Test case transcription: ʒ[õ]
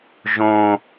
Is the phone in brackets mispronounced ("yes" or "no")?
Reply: no